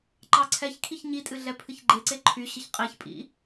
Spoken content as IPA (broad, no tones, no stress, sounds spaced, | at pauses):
ǃ ɑ ǀʰ ɛ ç kʰ i ç ɲ i tʼ ɨ ɮ ɛ pʰ ɨ ç ɡ͡ǃ e ǀ e ǃʰ y ɕ ə ç qʼ e ç pʼ ḭ